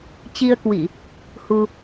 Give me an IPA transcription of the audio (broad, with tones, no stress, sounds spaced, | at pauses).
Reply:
t͡ɕ i˧ ə̯ k w i˧˩˨ | h u˧